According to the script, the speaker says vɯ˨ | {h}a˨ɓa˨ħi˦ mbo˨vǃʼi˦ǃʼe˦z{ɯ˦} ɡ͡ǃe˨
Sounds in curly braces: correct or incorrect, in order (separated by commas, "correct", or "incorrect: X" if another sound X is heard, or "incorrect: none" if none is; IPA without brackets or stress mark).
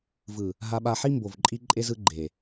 incorrect: ɦ, correct